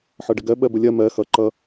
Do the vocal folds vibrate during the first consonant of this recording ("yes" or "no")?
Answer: no